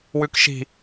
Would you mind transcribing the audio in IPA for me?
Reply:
w ʉ k ʃ i̤

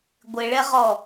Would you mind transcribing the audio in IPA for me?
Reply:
ɡʷ ɪ ɭ ɛ ʁ ɔ

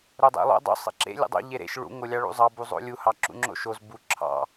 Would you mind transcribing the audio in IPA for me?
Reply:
ɾ o dˤ ḛ lˠ o̰ dˤ o̰ sˤ ḛ ǁ ḛ lʲ o̰ dˤ o̰ ʎ e ɾ ḛ ʃ ɭ ṵ ŋ o lʲ ɑ ɭ ṵ zˤ ɑ b u zˤ o̰ lʲ u h ɑ ǁ ṵ ŋ͡ǁ o̰ ʃ o z b u ǁʰ ɑ̰

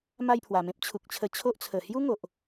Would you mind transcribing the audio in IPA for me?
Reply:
m a˥˧ j pʰ w a˨˩ m ẽ˦ p̚ t͡ɕʰ u˨ k̚ t͡ɕʰ ə˧ t͡ɕʰ o˦ ʔ t͡sʰ ə˨˩ h j u˦ ŋ o˨ ʔ

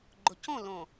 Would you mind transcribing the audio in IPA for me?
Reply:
ɡ͡ǃ ʊ˨˦ c õ˦˨ l õ˨

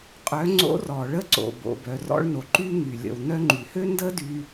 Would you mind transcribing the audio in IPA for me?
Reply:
qʼ œ˩˧ ŋ͡ǀ o̰˧˥ r ɔ˩ ɭ ə˧˥ ǀ o̰˩ b o̰˩ b œ˩ r ɔ̰˧ ɭ n o˩ ǃ y˧ ŋ y˩ lʲ ə̰˩ w n œ˧ ŋ͡ǃ y˩ h ø˥ n d ə˥ d y˧

